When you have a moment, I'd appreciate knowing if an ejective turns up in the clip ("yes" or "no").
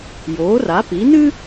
no